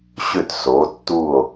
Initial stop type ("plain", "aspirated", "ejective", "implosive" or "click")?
plain